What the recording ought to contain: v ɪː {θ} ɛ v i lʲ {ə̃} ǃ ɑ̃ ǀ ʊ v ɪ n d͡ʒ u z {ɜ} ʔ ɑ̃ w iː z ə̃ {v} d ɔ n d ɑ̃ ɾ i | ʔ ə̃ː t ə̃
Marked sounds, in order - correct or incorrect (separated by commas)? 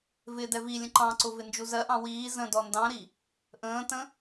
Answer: incorrect, correct, correct, incorrect